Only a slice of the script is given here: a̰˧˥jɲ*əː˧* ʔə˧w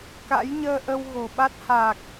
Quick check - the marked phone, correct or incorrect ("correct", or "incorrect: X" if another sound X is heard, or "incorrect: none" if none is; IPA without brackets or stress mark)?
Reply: correct